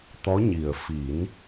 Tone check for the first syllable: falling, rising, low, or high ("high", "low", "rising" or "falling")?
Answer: rising